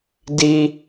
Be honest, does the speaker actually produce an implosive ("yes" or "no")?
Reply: no